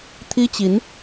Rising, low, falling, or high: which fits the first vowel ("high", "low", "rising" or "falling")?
high